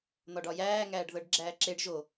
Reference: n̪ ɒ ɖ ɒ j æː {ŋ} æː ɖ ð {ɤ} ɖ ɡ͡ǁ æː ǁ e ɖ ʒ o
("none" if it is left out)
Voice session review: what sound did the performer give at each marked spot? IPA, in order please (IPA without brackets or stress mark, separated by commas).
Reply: ŋ, ɤ